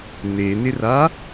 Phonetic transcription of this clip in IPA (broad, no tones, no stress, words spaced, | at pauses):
nenɪra